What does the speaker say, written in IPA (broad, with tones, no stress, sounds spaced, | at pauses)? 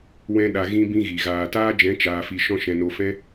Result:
w ɛ̃˦ ɗ a˧ ɣ ĩ˦ b ĩ˦ ɣ i˨ ɣ aː˨ t aː˦ d͡ʒ ɛ̃˨˦ t͡ʃ aː˧ f i˧ ʃ ɔ̃˦ ʃ ɛ̃˧ n o˧ f ɛ̃˦